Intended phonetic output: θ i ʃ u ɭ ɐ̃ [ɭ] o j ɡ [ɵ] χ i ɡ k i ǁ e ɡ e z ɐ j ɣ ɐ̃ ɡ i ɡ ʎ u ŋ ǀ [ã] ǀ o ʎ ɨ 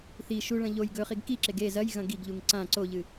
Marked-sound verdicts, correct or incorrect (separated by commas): incorrect, correct, correct